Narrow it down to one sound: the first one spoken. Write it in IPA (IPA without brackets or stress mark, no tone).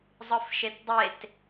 zˤ